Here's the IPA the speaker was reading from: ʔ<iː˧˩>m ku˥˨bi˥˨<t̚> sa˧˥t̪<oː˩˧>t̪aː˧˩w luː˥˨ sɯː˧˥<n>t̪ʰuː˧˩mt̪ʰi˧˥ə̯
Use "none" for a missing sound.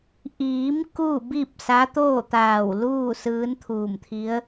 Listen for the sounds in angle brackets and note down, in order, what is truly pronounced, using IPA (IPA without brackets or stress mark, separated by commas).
iː˩˧, p̚, oː˥˨, n